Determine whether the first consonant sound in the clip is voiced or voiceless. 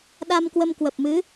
voiced